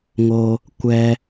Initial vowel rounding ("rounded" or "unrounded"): rounded